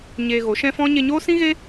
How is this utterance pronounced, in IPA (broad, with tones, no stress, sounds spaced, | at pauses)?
ɲ eː˧ ɣ o˨˦ ʃ ɛ̃˦ f ɔ̃˦ ɲ e˧ ɲ oː˦ s ĩ˦ ɣ e˦